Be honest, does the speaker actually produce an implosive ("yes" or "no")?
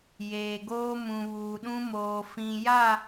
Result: yes